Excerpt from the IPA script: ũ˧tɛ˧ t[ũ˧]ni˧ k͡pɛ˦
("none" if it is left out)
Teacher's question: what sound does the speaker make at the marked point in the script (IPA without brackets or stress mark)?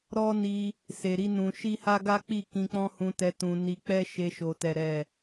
ũ˧